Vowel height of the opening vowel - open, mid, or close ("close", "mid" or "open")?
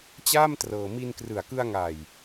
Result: open